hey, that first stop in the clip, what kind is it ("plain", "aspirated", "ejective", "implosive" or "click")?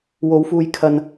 aspirated